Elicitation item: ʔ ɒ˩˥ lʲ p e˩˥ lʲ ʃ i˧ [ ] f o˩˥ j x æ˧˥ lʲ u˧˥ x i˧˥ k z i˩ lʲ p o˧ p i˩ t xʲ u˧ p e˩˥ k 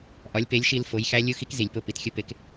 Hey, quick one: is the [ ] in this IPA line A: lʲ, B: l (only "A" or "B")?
B